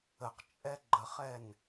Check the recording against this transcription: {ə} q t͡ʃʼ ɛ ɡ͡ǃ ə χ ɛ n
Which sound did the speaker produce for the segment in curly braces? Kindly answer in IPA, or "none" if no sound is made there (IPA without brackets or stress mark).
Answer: ə